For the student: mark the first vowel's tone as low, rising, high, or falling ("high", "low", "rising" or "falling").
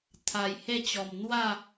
low